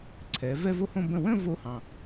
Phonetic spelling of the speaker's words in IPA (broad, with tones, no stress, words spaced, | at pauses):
ǀʰɛ˩˧ vɛ˥˧vo˥˧ hõ˥˧bə̃˥˩ wə̃˥˧ vo˥˧hɑ̃˨˩